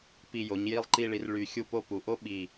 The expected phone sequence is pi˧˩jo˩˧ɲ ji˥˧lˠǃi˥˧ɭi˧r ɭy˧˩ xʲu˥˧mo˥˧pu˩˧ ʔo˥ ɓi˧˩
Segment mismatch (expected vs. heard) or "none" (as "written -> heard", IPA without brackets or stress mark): m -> p